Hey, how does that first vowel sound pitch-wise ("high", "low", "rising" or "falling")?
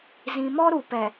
low